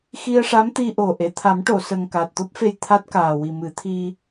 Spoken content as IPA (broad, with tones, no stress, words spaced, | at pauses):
xi˧ə̯ʂa˧˥mt̪i˧ʔo˨˩ ʔe˨˩˨ t̪ʰa˨˩˦mʈo˨˩˨sə˨˩ŋ ka˨˩t̚t̪o˦˥p̚fe˧j t̪ʰa˦˥t̚kaː˨˩ wi˨˩mɨ˨˩˦t̪ʰi˧